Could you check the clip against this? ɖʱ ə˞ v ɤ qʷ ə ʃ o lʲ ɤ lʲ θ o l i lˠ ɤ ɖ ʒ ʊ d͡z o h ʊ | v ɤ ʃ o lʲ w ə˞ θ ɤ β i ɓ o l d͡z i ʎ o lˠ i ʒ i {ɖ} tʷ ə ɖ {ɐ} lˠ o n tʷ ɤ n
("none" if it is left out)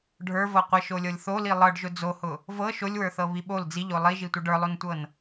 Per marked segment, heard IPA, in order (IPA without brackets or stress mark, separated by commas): none, ə˞